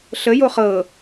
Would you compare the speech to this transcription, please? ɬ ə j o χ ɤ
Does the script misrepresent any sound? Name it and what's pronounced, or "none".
none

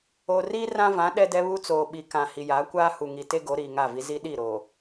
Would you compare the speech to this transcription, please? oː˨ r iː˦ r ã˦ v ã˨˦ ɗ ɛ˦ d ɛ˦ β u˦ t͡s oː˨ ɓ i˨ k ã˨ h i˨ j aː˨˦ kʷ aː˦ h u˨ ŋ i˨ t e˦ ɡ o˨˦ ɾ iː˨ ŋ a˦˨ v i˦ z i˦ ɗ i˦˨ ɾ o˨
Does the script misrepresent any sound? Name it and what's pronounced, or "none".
none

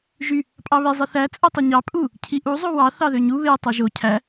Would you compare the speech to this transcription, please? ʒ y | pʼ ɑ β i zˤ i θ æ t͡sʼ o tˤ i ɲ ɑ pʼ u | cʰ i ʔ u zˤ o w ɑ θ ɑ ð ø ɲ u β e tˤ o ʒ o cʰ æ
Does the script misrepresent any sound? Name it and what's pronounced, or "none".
none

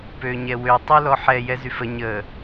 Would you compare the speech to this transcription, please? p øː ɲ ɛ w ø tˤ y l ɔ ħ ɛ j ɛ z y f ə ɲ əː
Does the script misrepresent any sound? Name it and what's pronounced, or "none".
none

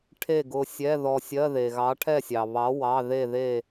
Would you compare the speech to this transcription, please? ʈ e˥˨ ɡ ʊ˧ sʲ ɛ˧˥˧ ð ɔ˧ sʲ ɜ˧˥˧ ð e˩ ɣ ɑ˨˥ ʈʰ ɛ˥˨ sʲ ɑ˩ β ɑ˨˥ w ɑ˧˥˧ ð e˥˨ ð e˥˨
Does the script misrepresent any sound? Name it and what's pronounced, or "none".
ʈ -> ʈʰ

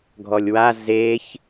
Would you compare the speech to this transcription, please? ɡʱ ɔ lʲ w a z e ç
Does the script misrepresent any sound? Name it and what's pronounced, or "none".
none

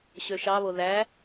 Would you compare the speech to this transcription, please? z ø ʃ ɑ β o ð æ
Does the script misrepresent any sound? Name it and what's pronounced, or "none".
z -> ɕ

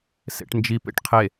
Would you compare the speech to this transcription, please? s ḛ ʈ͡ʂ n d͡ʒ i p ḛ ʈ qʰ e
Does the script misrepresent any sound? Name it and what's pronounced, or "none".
ʈ͡ʂ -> ʈ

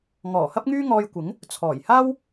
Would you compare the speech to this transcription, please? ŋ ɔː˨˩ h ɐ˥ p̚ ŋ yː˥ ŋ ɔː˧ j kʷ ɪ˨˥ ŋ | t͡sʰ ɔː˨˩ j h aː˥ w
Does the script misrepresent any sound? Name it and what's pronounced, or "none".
none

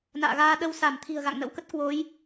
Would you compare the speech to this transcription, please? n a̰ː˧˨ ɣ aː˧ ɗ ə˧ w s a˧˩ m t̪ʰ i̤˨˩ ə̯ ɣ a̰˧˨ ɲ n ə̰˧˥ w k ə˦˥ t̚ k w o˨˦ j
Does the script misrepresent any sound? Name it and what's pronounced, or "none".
ɲ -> ŋ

